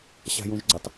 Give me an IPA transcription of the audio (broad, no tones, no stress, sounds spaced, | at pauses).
ɕ a̤ j ũ ʒ ɡ͡ǀ ə tˤ